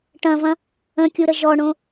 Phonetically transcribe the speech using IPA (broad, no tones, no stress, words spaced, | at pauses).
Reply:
ʈɐ̃vɐ̃ | ə̃kʲuɾə ʒɔɳõ